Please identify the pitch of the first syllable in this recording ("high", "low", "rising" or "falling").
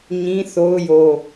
high